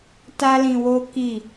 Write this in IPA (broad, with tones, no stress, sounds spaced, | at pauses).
t a˦ l ĩ˧ w o˦ k i˦˨